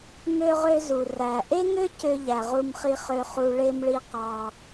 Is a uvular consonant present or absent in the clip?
present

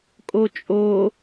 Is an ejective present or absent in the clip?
present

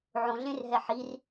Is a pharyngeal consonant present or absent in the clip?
present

